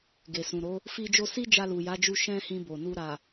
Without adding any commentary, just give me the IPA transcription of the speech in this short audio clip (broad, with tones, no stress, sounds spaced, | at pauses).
ɡ e˨ s ũ˨ ɾ o˨˦ | f i˧ d͡ʒ o˧ s i˦ d͡ʒ a˧ l u˨ j a˨˦ d͡ʒ u˧ ʃ ɛ̃˦ h ĩ˧ b o˨ n u˧ ɾ a˨